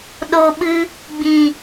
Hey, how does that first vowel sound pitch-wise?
low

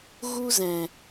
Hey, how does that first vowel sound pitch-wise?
high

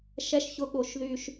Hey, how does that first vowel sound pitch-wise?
high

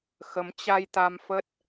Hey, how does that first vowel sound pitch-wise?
rising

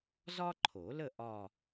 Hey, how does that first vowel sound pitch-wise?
high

